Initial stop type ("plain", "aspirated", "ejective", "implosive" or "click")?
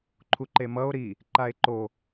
click